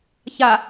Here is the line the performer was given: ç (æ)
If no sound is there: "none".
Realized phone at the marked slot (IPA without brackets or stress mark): a